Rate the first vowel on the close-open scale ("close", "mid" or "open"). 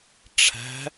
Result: open